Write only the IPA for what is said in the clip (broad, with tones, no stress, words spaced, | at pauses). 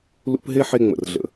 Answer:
lṵ˦pɦe˥ħe˦ ŋ͡mə̰˨rɮə̰˨